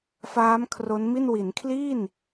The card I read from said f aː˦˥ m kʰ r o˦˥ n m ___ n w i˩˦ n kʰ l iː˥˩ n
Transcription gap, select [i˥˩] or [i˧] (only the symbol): i˥˩